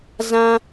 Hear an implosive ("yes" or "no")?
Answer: no